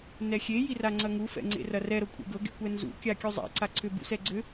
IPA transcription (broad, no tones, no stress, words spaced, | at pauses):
nɛxʲe jiraŋ͡ǀɐŋu fɛ̰ŋ͡ǀḛrɐrɛ ɾɤkʷʼḛɡɤ ɡḛkʷɛnzṵ kʲakʲuzˤɛ̰ ǀaǀʰʏ bṵsɛɡ͡ǀʏ